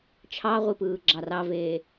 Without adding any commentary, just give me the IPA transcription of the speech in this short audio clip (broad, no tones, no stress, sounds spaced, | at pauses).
t͡ʃʰ ɑ ʁʷ i p ɯː ɡ͡ǁ ɑ r ɑ v eː